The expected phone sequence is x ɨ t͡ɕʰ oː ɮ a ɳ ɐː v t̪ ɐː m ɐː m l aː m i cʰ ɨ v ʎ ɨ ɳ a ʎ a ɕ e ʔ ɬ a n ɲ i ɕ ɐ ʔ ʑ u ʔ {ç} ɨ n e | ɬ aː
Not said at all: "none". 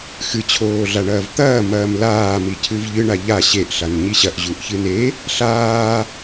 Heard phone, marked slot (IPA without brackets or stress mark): ç